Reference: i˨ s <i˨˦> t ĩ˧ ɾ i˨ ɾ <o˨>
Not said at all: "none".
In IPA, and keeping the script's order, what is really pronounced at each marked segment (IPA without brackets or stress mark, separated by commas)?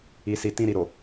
i˨, o˨